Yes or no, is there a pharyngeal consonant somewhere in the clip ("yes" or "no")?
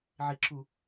yes